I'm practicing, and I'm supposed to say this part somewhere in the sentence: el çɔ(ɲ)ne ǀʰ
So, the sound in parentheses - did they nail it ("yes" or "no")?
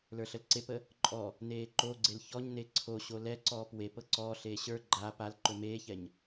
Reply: yes